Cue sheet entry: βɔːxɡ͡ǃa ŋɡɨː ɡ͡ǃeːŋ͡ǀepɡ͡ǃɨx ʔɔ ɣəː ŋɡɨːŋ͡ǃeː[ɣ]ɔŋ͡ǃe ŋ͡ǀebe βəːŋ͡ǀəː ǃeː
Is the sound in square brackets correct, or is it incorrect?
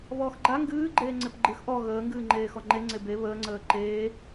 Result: incorrect: x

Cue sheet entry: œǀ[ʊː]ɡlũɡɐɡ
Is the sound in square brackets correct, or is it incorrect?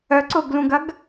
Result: correct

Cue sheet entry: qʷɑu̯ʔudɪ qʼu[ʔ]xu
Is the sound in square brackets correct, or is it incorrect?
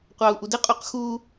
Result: incorrect: q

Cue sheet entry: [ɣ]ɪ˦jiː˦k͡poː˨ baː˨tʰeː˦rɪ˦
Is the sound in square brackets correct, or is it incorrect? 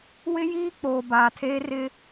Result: incorrect: w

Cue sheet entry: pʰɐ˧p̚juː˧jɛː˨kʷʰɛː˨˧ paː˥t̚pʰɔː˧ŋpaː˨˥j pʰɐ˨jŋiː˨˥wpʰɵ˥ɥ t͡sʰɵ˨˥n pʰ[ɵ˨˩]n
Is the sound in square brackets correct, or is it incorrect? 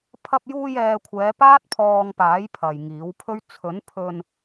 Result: incorrect: ɵ˧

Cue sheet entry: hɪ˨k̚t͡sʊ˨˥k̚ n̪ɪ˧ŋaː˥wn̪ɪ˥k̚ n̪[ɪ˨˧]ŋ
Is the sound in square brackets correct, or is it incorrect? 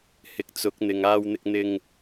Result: incorrect: ɪ˧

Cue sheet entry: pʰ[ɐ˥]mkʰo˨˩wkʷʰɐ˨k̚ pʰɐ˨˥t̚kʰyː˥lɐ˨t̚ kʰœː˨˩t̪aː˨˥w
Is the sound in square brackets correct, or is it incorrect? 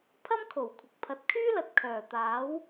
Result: correct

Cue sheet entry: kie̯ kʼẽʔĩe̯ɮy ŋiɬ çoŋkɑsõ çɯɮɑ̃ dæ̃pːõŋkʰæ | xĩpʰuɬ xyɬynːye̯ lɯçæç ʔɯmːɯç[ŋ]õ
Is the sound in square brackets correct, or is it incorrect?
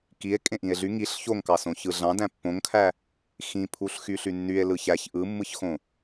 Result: incorrect: x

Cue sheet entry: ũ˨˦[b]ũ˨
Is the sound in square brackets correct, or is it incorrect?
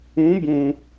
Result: correct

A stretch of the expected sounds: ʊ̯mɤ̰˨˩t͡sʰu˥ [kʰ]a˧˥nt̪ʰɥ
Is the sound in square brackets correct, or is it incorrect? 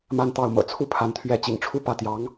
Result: incorrect: pʰ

